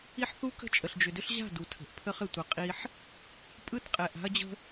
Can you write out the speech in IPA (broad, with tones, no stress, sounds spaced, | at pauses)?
i˦ ħ θ u˦ k ə̤˦ t͡ʃʼ ə˨ ɬ d͡ʒ ʏ˨ d ʏ˦ ɬ ʑ a̤˦˨ d u˨ tʰ ə̤˨ ʔ pʰ ə˦ χ ɘ˨ tʷ ə˨ qʼ i˦ ħ | pʼ ɯ˦˨ t qʼ ɛ˨ ʔ a̤˦ ɐ̯ d͡ʑ ə̤˦